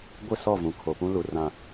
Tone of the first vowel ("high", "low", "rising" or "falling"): falling